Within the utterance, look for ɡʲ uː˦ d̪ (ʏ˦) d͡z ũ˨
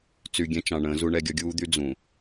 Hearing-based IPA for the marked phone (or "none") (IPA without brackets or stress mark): y˦